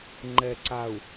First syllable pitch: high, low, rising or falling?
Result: low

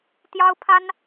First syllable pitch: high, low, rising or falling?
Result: high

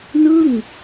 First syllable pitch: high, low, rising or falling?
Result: falling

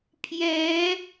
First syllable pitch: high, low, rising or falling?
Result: rising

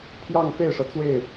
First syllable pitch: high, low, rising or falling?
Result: falling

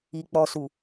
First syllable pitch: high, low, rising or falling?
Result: low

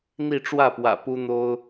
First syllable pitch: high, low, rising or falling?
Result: falling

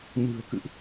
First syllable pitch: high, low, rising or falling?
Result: low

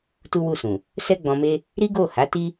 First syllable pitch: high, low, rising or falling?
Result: high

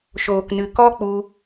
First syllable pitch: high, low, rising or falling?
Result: low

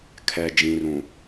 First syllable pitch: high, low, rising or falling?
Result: low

